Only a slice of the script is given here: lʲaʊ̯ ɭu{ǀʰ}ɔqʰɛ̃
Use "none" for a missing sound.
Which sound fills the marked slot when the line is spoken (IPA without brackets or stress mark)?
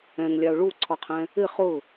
ǀʰ